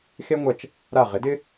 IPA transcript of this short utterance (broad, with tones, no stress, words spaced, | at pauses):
xe˥ŋʷɐ˧t͡ʃ | ɾa˥˩ ʁɪ˩˥dɪ˥